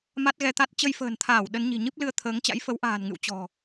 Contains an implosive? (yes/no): yes